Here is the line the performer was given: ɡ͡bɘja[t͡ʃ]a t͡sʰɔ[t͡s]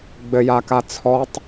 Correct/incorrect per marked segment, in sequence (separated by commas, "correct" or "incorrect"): incorrect, incorrect